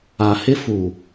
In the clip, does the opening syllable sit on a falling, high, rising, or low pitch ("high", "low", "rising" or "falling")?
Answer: low